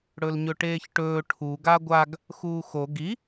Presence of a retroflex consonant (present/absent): present